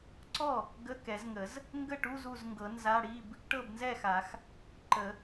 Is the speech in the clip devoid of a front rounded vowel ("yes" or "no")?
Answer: yes